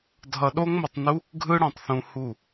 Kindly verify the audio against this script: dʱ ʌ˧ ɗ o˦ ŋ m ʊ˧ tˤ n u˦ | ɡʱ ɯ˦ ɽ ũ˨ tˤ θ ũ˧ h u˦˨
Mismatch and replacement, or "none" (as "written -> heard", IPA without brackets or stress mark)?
none